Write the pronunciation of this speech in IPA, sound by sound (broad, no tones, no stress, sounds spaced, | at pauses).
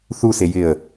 θ u s e j ɪ ə̯